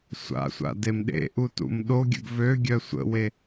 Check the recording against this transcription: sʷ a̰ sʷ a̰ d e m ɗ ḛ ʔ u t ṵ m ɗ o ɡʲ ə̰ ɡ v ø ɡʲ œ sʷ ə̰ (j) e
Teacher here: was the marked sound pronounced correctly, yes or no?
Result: no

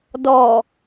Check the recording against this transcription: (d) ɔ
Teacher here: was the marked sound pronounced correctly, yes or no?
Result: yes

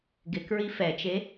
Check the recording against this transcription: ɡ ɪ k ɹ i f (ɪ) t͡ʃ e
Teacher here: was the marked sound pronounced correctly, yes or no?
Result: no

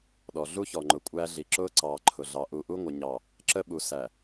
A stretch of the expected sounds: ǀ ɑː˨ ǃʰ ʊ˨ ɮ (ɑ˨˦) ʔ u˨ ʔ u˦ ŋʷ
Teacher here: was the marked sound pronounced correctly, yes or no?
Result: yes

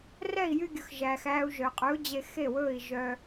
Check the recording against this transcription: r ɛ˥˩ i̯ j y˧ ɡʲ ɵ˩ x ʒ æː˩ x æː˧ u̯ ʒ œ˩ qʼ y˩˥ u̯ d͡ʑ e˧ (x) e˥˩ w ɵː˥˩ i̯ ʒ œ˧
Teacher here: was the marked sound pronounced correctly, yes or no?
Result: yes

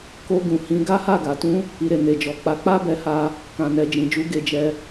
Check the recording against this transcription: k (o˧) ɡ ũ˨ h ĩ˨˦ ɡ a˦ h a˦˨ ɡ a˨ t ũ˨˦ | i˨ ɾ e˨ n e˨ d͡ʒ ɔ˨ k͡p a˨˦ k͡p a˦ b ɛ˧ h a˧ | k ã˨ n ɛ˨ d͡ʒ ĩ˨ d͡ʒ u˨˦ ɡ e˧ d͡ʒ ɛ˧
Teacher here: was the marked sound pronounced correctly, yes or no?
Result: yes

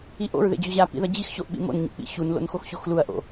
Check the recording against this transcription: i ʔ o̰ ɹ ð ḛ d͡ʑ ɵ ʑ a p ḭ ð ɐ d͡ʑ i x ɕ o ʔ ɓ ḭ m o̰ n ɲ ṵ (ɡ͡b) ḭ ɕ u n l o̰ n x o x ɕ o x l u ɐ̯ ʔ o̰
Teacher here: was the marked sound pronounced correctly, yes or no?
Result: no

